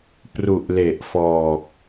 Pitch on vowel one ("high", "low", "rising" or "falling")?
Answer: low